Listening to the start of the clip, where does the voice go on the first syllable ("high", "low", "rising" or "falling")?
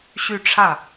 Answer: falling